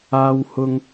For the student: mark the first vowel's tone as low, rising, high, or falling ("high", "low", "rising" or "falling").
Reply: high